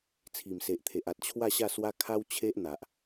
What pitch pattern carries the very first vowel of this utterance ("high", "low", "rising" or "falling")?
low